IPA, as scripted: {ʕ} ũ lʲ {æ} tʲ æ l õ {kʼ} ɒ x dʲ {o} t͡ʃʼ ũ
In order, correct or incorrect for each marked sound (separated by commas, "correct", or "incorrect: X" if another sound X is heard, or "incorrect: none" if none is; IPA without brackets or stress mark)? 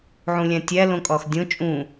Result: correct, incorrect: æ̃, correct, incorrect: õ